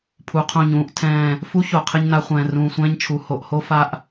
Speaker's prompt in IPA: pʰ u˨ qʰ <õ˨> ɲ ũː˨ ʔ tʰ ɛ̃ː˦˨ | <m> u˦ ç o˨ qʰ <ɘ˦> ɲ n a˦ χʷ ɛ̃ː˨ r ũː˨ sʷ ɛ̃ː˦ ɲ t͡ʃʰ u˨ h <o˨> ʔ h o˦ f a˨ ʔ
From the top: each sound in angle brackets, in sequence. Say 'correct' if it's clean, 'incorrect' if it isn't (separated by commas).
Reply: incorrect, incorrect, correct, correct